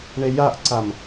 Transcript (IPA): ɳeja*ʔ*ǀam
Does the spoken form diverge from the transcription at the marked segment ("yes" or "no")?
no